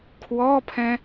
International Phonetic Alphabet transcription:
kʰwɔpʰɛ̃

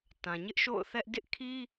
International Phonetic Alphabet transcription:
tã˨ɲɪ˦ʔ ʃo̰˦˨ʊ̯θɛ˦ʔ dɪ˦ʔkʰi˦

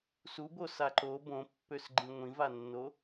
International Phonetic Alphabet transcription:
subo saǃo bõpːøs ɡ͡ǃĩŋʷĩvanːo

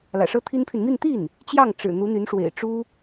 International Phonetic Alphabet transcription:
lä̰˨˩ʂɤ˥t̪ʰi˥npʰy˨n mi˥˧n t̪i˥˩n | t͡ɕjɑ˥˩ŋ ʈ͡ʂɻ̩˨˩ n̪u˧˥n̪y˧˥nʂwḛ˨˩ɪ̯ ʈ͡ʂu˥

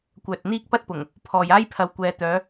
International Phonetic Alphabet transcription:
kʷœː˨t̚n̪iː˥k̚pɐ˥t̚pʊ˨˩ŋ | pʰɔː˨j aː˥j pʰɐ˨w kʷɛː˨t̪œː˨˧

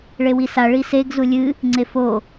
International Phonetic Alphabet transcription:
ɭewisa ɭiseɡ zulʲɨ | ŋ͡ǀefo

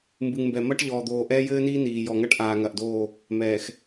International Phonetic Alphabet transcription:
mbɨ˨ŋmbɛ˨mɐ˦ʈ ʎɔː˨d̪oː˨ ʔɛː˦jɘː˦niː˦ niː˨ jɔ˨ŋɐ˦ʈ ʔaː˨ŋɐ˨ʔdoː˦˨ | mɛː˨x

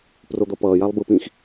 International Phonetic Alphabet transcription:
prod̪ʌpʌːjalˠ bɯpĩx

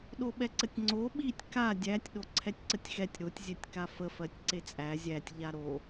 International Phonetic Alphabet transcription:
ɗoɓɛǀətʲŋ͡ǀo ɓitʲ ka dʲætʲ ɗoǀʰɛtʲǀətʲxɛtʲ ɾotʲ zʲɛtʲkafə fɜtʲǀet͡sʼæ zʲætʲ ʎaɾo

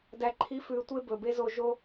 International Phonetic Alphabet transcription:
dæ˨ǃʰi˨˦fʉː˨ tʷe˦bɵ˨be˦ zo˧ʒo˦

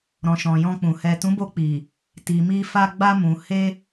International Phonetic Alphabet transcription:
ɾɔ̃˨ʃɔ̃˨jɔ̃˧k͡pũ˨ hɛ˨ tũ˨˦bo˧k͡pi˨ | ti˨mi˧ fa˧ɡ͡ba˧mũ˨ he˧

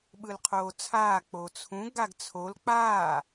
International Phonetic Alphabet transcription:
ɓɯlqʰoːt͡sʰaː k͡pot͡sʰũ ɡaɡt͡sʰol k͡paː

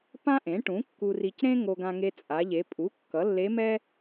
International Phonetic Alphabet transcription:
pã˥ʔẽ˩˥ ʈũ˩˥ kːu˧ri˧c ɾẽ˥ ŋo˧ɡã˧ŋe˧ t͡sʼa˩˧ʎe˩˧pʼu˩˥ kːʌ˩˥lːe˧˥mɛ˥

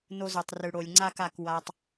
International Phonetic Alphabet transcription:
no˧zo˨tˤ rɯ˨ɽo˨lʲŋ͡ǀa˦ka˦˨k wa˧tˤ

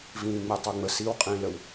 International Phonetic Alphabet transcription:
vĩːŋ͡mɛtˤoŋ͡mə siw qʼĩːləw

